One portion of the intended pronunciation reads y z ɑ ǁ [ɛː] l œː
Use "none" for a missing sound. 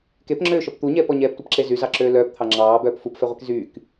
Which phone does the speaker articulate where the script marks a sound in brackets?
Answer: øː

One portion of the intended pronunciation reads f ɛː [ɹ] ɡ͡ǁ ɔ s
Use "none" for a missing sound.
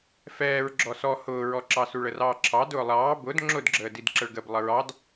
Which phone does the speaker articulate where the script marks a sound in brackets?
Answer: ɹ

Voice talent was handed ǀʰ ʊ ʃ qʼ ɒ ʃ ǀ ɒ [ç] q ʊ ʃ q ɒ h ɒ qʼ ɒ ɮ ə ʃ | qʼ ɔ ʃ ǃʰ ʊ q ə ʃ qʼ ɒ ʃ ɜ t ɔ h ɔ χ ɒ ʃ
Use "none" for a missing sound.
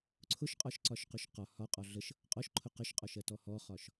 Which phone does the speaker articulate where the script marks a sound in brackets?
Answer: ʃ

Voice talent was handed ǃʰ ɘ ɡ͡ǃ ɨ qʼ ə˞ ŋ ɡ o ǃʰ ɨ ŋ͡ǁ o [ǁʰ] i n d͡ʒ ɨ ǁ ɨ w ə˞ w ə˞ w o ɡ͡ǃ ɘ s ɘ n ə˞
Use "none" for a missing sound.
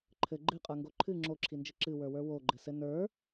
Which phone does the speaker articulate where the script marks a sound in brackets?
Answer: ǁʰ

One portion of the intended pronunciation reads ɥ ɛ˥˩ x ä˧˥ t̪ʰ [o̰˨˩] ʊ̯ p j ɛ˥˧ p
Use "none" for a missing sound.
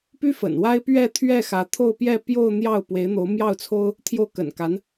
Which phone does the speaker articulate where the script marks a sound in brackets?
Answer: o˥˧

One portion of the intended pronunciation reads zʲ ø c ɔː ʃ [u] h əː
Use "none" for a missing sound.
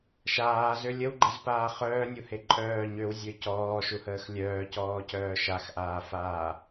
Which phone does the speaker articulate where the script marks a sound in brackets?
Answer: u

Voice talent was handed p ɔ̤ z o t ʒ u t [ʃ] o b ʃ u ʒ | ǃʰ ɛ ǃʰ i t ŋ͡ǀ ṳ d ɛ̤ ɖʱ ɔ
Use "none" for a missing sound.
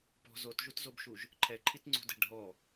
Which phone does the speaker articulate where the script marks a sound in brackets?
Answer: z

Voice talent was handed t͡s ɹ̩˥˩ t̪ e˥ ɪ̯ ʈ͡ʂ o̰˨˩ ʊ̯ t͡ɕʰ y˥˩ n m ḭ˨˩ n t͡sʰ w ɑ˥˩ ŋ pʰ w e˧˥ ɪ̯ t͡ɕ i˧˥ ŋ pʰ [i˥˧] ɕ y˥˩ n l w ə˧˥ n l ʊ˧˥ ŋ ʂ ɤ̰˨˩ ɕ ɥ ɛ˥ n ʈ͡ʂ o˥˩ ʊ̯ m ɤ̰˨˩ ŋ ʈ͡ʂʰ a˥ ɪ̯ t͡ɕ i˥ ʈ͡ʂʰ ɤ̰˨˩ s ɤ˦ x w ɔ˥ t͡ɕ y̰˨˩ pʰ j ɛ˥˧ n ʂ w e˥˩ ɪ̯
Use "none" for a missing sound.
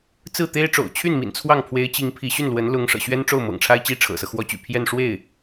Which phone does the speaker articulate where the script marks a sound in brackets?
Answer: i˧˥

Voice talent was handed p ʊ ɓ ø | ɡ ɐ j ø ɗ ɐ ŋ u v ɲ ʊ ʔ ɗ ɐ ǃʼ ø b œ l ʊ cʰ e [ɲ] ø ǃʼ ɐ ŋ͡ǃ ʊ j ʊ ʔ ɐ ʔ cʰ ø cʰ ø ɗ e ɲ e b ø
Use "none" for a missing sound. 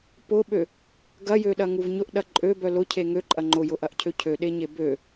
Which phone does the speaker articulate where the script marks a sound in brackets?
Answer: ŋ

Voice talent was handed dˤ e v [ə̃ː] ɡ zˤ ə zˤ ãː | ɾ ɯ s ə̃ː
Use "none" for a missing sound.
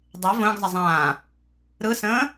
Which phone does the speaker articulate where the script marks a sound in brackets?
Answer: ə̃ː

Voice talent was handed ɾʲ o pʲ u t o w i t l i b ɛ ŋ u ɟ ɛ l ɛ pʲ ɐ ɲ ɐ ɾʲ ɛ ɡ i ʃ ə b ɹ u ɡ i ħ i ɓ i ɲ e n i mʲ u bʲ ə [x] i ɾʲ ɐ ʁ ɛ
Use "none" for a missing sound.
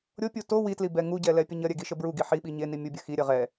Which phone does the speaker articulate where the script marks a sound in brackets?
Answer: x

